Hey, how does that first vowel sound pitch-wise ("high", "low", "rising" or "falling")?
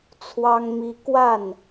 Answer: high